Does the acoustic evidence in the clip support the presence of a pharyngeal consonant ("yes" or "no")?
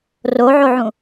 yes